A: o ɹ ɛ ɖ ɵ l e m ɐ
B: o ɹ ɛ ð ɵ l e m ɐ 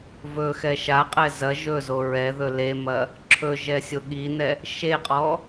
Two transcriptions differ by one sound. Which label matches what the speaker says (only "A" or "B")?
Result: B